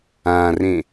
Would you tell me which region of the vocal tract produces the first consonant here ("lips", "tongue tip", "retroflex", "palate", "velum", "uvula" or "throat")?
tongue tip